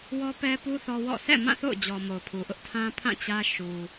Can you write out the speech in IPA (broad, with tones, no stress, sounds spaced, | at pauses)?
w ɔ˦ p ɛ˦ p u˦ θ ɔ˦ w ɔ̰˦˨ s ɛ̰˦˨ m ã˦˨ θ o̰˦˨ ʊ̯ d͡ʑ ɔ˨ m o˨ ʊ̯ pʰ u˨ ʔ ʊ˦ ʔ tʰ ã˦ pʰ ã˦˨ t͡ɕ ä˦ ʃ u˨